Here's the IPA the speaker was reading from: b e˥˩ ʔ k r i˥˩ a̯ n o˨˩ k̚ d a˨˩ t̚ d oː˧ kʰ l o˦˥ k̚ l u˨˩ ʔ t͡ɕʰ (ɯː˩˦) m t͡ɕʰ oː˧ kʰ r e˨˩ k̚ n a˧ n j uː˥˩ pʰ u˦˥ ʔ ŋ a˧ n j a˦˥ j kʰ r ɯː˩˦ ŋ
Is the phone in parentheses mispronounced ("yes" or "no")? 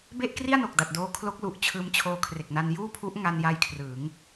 yes